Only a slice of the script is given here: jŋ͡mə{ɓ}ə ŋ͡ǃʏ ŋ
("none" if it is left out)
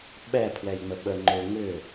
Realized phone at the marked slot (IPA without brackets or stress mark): ɓ